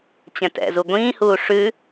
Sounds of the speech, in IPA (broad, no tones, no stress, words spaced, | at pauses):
t͡ɕɛ̃tɛ̰zu ɡʷĩːhuː ʂʉ